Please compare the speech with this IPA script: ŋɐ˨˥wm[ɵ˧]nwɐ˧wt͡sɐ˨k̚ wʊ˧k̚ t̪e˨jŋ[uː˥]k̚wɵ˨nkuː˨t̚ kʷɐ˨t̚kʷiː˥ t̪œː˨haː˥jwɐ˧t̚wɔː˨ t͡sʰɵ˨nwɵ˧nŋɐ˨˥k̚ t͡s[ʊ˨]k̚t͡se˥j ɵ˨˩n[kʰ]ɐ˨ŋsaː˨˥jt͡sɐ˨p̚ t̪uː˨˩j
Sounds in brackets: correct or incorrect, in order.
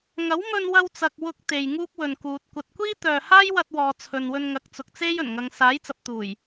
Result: correct, correct, correct, incorrect

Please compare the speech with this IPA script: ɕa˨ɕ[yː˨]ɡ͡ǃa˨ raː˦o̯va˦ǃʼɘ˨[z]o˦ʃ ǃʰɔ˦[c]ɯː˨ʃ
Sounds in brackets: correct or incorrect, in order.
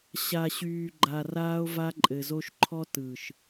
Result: correct, correct, incorrect

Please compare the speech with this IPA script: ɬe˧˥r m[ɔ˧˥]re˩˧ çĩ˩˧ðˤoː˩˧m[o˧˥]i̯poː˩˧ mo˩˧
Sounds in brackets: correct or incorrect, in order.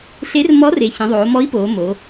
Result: correct, incorrect

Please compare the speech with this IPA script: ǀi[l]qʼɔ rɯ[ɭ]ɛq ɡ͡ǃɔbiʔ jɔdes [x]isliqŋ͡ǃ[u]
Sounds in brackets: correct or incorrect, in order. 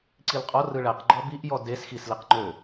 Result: correct, correct, correct, incorrect

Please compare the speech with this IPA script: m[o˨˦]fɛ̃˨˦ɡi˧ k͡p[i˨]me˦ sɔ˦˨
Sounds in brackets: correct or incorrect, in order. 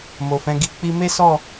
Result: incorrect, incorrect

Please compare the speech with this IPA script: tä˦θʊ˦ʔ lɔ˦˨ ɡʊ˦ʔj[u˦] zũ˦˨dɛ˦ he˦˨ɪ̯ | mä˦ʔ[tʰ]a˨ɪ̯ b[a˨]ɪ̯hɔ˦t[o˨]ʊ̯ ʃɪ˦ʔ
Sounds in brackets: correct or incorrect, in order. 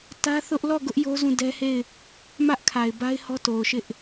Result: incorrect, incorrect, incorrect, correct

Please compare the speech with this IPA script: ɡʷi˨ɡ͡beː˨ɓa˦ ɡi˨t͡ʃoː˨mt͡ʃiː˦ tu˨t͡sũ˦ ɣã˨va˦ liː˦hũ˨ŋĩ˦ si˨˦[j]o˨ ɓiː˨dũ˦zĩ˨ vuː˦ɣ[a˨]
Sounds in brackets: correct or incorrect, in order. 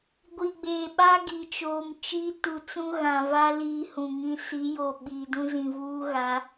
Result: correct, incorrect

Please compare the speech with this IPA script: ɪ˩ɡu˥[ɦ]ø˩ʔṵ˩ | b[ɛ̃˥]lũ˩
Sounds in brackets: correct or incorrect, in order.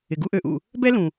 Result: incorrect, incorrect

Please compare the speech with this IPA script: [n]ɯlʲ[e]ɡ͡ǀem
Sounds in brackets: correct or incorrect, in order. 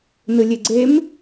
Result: correct, correct

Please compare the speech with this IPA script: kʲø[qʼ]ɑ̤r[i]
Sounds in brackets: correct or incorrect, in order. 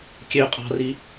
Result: correct, correct

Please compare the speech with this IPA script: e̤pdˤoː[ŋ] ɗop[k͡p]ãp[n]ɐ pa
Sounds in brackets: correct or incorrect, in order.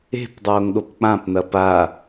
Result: correct, correct, correct

